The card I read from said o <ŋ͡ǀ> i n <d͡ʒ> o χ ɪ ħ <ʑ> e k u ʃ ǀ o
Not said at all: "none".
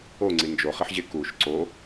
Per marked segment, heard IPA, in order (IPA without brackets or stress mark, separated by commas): ŋ͡ǀ, d͡ʒ, ʑ